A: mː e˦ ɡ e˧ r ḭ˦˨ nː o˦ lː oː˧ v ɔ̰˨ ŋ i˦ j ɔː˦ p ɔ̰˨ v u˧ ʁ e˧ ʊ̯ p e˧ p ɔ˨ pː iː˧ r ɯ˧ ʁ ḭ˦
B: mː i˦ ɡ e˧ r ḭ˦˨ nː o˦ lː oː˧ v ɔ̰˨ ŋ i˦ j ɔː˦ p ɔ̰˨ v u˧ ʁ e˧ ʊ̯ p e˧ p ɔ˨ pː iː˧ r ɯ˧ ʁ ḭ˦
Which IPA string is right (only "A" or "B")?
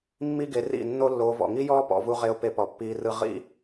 B